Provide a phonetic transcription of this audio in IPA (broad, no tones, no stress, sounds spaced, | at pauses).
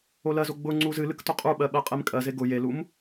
o l ɜ z o ɡ͡b ʊ ŋ͡ǀ u z ɨ l ɨ k t ʊ qʼ u ɓ ɜ ɓ ɜ qʼ e m kʼ ɜ z e ɡ ʊ j e l u m